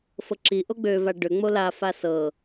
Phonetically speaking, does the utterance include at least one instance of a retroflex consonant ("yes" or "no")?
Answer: yes